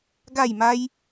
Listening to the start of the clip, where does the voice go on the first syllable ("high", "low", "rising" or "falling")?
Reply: falling